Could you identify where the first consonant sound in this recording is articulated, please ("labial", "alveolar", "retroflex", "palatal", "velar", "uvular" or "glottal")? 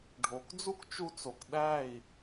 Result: retroflex